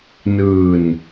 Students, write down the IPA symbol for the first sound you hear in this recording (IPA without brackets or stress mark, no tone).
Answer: n